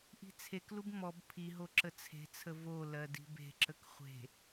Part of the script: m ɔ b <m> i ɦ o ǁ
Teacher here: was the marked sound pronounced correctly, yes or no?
no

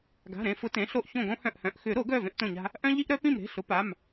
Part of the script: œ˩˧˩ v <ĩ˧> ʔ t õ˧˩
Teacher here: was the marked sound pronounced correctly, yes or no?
no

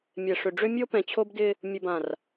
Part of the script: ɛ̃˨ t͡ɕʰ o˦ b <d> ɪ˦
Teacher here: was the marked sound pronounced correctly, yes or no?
yes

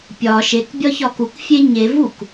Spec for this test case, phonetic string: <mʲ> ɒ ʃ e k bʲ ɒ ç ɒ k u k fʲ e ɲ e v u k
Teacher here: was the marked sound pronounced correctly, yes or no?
no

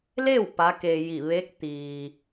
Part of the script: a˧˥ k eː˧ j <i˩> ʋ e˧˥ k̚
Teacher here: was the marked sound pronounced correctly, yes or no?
no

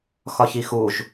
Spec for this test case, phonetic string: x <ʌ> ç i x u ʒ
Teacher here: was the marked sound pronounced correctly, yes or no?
no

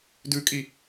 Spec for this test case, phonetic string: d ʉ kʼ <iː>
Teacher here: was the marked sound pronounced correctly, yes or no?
no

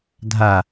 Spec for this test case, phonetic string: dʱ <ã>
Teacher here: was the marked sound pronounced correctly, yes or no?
no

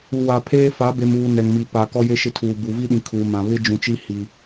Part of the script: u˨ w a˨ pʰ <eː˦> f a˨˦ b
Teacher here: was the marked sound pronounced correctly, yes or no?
yes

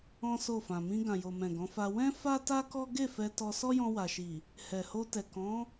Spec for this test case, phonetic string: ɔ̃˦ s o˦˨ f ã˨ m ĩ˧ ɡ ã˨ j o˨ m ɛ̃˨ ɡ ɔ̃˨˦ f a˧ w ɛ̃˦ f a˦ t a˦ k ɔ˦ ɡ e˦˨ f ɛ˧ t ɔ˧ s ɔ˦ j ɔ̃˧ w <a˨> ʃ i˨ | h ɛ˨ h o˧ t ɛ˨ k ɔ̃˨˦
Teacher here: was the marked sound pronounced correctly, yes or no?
yes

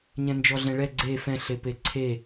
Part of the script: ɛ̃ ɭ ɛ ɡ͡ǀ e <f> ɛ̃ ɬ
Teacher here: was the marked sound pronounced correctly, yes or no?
yes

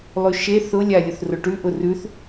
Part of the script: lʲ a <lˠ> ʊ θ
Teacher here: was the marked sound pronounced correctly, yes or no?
no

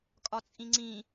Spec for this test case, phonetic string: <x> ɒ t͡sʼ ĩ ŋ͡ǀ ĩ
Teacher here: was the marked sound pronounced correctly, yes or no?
no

